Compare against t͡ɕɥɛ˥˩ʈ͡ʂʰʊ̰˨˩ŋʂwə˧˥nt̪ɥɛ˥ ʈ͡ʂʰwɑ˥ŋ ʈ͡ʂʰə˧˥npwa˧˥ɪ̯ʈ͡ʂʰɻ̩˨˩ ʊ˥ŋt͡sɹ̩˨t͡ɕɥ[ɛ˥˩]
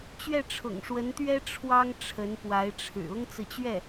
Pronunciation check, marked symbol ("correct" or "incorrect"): correct